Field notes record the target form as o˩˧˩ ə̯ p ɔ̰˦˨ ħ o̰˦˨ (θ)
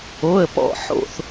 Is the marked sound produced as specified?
yes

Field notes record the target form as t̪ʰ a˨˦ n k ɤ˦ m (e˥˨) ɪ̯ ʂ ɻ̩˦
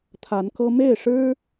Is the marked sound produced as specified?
yes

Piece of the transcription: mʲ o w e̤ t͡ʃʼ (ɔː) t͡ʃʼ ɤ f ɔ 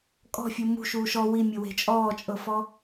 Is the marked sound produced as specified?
yes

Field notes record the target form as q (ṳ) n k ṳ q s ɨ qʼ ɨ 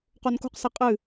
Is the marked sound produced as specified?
no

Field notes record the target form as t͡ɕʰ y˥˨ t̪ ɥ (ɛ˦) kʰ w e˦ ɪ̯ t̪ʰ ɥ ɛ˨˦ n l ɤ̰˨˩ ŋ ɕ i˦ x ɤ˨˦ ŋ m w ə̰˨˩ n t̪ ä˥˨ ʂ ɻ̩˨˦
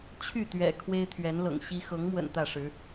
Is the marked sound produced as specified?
no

